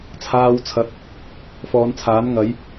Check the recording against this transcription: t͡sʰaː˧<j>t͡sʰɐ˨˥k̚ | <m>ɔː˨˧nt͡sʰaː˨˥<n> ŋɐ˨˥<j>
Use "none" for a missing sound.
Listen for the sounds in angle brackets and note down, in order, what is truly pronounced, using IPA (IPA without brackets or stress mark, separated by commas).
w, f, n, j